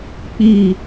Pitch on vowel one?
falling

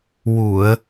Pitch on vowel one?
low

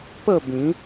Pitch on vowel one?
falling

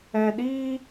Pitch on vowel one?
low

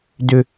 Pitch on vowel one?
high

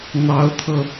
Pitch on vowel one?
rising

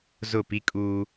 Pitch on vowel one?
falling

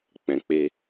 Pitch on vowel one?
low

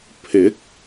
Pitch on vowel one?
rising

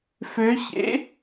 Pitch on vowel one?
rising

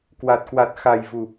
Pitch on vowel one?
low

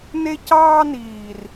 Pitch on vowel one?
high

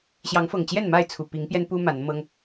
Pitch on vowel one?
rising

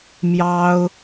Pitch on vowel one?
high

